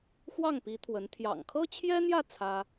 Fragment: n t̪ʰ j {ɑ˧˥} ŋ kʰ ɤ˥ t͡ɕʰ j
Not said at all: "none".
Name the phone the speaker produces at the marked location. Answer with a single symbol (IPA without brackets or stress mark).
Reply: ɑ̰˨˩